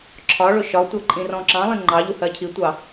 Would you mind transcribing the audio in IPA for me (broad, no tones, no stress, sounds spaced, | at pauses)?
ǁʰ ɒ ɭ ʊ ʃ ɒ tʷ ɜ ǃʼ ĩ r ɔ̃ ǁ ɑ̃ lˠ ĩ ŋ͡ǃ ɑ ʎ u h ɜ cʰ i tʷ ɑ